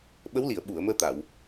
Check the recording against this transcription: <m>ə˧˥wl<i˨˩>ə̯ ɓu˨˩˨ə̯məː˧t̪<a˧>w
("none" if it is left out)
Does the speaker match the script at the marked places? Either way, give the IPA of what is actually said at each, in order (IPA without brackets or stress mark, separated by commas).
ɓ, i˨˩˨, a˨˩˨